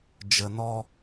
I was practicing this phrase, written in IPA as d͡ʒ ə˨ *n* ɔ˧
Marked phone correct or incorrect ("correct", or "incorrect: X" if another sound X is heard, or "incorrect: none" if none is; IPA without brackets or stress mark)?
correct